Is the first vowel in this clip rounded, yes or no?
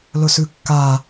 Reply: yes